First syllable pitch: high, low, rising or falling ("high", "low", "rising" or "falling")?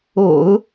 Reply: low